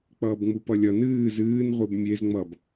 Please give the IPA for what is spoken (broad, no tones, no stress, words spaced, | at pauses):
k͡pʌːbŋ͡mupʌlʲʌ nɨːz ɨːn ʁʷɨbmʲez ŋ͡mʌb